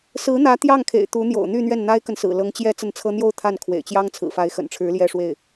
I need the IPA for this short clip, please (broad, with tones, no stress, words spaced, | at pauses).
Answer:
sɹ̩˧˥n̪ä˧˥ t̪jɑ˥˩ŋkʰḛ˨˩ɪ̯ t̪u˧˥n̪jo̰˨˩ʊ̯n̪y˥˧n̪ɥɛ˥˩n n̪a˥ɪ̯kə˨nsɹ̩˨˩ lɤ˧˥ŋt͡ɕjɛ˥ t͡sə˥˩nt͡sʰɤ˥ n̪jo˥˧ʊ̯ t̪ʰa˥˩n kʰwḛ˨˩ɪ̯t͡ɕjɑ˥ŋ t͡sʰɹ̩˨˩fa˧˥ɪ̯xə̰˨˩nʈ͡ʂʰɻ̩˧˥ ljɛ˥˧ʂwe˥˩ɪ̯